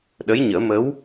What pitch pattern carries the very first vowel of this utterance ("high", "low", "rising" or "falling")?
rising